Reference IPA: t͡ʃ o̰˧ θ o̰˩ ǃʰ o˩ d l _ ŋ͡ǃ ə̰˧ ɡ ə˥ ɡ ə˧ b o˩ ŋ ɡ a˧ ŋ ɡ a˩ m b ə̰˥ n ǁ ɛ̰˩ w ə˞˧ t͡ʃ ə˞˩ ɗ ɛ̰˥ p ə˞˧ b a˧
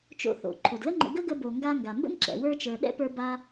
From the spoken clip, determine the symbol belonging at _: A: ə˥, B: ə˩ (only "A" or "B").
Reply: A